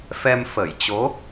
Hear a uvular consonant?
no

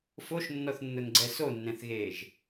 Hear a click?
yes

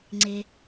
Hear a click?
yes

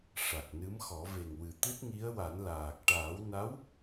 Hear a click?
no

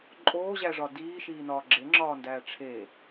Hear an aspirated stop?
yes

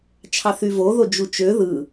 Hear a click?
no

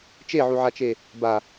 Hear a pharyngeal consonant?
yes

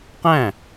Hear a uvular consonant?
yes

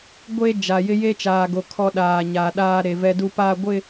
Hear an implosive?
yes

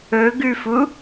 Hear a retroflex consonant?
no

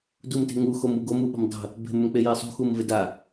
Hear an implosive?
yes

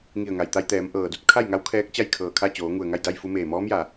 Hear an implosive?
no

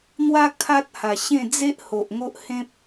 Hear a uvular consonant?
no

